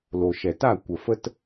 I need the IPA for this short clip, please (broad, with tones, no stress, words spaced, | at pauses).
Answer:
lo˨ʃɛ˨ta˦˨ kʷə˨fə˦t